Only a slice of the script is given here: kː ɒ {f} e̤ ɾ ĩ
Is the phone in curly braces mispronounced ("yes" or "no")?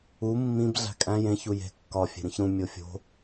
yes